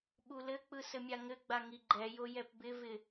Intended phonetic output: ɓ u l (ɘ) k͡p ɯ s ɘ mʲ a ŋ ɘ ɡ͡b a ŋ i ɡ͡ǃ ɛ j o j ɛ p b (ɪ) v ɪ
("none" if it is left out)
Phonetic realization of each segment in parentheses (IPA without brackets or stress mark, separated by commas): ɘ, ɪ